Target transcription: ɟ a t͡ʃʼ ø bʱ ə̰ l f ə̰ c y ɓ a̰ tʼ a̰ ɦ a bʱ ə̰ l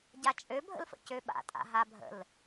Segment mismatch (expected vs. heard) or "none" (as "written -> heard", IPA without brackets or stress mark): y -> ø